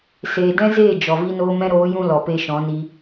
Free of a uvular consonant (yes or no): yes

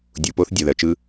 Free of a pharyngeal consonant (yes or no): yes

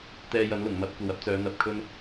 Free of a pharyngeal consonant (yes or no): yes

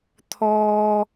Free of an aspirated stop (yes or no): no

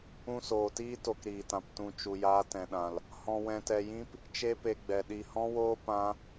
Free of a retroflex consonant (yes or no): yes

